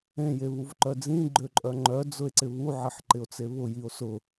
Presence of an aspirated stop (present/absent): absent